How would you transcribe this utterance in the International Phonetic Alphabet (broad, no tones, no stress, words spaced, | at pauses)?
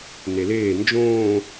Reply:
neleː nd͡ʒõː